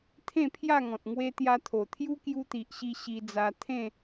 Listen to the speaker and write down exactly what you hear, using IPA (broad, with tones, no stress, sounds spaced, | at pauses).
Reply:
t̪ʰ ẽ˥˧ pʰ j a˥˧ ŋ ɔ̃˨ t̚ ŋ w e˧ t̪ j a˧ t̪ʰ o˨˩ t̪ʰ j u˦ k j u˧ t̪ i˨ ʔ ɕ i˧ ɕ i˧ d͡z a˧ t̪ʰ ẽ˥˧